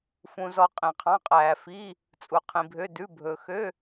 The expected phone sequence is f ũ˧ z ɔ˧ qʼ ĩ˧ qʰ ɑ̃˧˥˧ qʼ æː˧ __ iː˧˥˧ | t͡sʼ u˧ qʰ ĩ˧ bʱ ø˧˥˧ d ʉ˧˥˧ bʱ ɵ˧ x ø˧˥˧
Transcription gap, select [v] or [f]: f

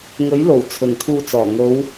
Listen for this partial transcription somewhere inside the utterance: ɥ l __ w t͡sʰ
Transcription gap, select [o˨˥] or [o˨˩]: o˨˩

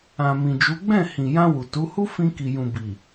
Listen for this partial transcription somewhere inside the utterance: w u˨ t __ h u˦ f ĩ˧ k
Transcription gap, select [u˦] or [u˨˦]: u˨˦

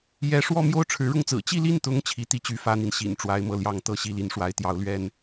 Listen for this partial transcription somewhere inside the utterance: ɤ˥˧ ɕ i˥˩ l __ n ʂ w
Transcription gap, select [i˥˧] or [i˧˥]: i˧˥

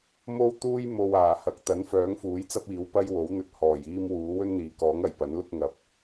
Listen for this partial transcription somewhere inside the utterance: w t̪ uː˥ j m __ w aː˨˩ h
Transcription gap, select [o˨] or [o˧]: o˧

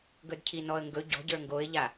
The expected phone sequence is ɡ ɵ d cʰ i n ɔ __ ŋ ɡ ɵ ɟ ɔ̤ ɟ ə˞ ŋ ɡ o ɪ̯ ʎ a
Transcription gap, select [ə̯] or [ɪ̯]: ə̯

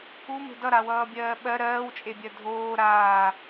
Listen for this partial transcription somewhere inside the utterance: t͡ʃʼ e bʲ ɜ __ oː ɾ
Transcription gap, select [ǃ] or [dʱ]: dʱ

